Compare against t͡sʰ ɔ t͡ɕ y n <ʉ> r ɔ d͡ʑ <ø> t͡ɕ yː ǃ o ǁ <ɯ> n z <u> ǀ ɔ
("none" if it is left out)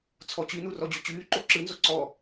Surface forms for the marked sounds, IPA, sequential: u, y, ɯ, o

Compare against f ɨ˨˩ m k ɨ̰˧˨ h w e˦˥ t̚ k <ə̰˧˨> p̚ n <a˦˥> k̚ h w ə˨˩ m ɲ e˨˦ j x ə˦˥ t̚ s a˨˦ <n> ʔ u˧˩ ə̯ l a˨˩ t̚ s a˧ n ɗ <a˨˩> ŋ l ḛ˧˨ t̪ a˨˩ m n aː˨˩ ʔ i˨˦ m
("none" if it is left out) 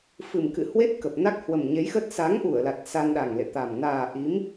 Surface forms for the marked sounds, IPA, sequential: ə˨˩, a˦˥, ŋ, a˨˩

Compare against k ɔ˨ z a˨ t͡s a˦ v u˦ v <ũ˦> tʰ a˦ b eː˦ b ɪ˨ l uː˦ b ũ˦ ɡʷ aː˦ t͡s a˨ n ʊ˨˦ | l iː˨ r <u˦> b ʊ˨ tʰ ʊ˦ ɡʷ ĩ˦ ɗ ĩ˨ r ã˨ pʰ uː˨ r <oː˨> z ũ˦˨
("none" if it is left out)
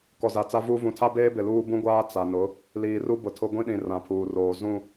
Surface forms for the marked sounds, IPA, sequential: ũ˨, u˦, oː˨

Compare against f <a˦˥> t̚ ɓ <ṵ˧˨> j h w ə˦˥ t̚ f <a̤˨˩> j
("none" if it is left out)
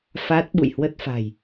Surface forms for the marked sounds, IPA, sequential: a˦˥, ṵ˧˨, a̤˨˩

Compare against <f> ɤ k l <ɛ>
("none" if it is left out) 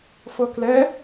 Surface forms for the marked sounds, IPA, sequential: f, ɛ

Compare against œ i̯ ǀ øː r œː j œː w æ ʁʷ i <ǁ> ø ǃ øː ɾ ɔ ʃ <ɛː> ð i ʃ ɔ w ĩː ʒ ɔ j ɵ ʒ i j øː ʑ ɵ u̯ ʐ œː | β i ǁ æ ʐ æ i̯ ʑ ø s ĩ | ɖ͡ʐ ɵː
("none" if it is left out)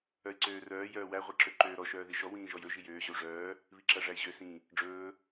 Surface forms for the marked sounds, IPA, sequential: ǁ, œː

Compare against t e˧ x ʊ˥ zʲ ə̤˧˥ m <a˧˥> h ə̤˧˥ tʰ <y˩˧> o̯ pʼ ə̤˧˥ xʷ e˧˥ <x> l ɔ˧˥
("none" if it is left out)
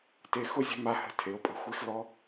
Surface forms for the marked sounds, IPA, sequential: a˧˥, e˩˧, x

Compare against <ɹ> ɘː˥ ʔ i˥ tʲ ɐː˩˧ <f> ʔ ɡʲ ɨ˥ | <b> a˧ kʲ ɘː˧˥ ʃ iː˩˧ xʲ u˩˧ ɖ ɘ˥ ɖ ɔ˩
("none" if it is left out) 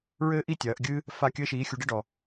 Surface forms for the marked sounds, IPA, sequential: ɹ, none, f

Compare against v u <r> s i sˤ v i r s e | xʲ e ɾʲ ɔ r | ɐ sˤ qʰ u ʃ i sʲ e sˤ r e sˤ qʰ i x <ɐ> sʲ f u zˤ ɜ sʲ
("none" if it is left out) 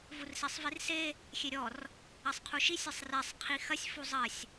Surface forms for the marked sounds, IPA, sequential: r, ɐ

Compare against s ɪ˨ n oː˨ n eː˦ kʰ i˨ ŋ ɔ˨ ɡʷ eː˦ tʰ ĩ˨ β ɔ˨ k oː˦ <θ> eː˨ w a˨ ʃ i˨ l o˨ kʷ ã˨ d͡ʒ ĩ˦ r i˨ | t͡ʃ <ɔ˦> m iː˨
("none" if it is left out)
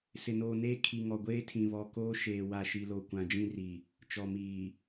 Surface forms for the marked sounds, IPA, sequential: ʃ, ɔ˨

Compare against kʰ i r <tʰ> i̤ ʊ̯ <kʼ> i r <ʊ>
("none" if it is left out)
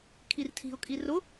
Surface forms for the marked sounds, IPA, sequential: tʰ, kʼ, ʊ

